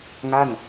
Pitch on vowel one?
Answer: falling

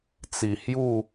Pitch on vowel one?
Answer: low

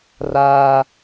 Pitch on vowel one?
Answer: high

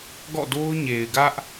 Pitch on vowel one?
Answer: falling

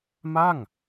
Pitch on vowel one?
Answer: falling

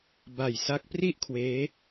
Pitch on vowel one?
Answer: low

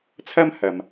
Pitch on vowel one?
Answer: high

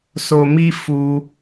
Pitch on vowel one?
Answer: low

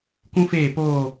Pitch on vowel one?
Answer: high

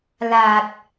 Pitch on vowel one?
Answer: low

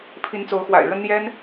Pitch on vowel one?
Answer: rising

